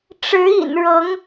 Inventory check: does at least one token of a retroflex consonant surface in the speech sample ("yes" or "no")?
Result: yes